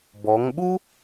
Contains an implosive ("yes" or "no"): yes